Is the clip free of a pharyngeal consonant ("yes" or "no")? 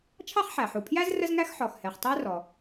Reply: no